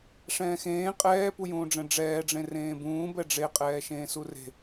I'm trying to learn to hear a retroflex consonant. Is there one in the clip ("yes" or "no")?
yes